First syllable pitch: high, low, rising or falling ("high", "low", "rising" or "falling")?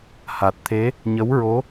low